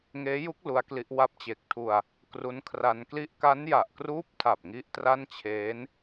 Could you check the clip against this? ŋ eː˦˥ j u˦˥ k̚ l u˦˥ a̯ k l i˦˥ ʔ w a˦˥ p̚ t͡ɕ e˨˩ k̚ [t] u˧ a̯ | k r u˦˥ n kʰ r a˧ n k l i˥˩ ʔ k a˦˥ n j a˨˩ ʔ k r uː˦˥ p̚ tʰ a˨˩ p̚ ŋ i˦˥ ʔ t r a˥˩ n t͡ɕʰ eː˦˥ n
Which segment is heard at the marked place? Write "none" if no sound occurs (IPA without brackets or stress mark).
tʰ